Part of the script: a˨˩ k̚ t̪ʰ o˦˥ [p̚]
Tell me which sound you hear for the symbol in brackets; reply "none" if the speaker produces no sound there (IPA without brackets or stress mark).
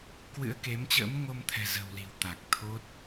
t̚